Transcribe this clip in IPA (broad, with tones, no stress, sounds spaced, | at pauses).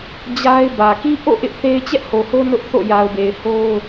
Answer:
d͡ʑ a˦ ɪ̯ b ä˨ k i˦ ʔ o̰˦˨ ʔ ɪ˦ ʔ θ e˦ ɪ̯ t͡ɕ ɛ˦ ʔ h o˨ h o˦ n ʊ˦ ʔ θ o̰˦˨ j a˨ ʊ̯ b e˨ ɪ̯ h o˦ ʊ̯